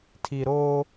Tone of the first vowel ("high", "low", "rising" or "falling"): low